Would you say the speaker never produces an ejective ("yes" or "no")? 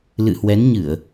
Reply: yes